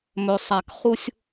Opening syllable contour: low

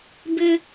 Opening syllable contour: high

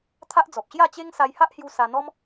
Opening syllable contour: high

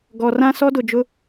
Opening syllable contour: low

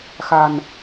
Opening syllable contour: low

